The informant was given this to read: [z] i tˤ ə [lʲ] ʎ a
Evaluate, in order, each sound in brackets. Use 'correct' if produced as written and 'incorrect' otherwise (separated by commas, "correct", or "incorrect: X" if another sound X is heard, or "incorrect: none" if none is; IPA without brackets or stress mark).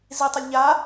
correct, correct